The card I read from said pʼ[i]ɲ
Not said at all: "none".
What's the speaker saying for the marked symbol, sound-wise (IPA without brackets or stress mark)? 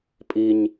i